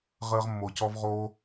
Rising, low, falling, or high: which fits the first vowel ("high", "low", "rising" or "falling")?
high